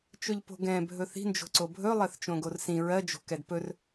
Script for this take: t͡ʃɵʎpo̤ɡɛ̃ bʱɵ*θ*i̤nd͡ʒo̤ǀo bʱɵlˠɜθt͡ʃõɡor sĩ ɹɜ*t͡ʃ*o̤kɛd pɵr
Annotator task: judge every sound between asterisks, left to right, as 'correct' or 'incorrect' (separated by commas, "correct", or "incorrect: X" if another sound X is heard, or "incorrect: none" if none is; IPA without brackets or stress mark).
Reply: correct, incorrect: d͡ʒ